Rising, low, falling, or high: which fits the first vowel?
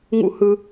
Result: high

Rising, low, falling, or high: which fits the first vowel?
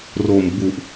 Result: low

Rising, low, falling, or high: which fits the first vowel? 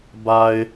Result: low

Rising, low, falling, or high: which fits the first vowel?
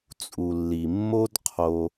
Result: low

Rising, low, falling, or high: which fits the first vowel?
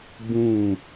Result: falling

